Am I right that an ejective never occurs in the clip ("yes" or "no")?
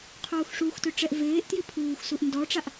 yes